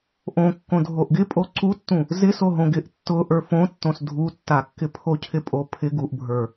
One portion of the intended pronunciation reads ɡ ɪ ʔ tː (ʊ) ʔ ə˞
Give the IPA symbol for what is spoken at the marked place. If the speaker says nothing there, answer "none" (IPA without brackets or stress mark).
ʊ